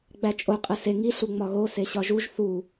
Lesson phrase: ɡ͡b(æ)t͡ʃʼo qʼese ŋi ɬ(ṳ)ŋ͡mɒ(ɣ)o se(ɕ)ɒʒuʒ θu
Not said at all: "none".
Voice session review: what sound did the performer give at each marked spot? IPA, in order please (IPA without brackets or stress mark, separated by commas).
æ, u, ɣ, ɕ